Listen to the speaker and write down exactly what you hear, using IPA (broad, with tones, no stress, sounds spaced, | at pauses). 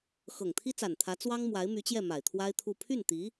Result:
x ɤ˨˩ ŋ t̪ʰ i˥ t͡s a˨˩ n t̪ʰ ä˧˥ t͡s w ɑ˥ ŋ m w a˧˥ ɪ̯ m y˧˥ t͡ɕ j ɛ˥˩ m a˨˩ ɪ̯ t̪ʰ w a˥ ɪ̯ t̪ʰ u˥˧ pʰ y˥˩ n t̪ i˧˥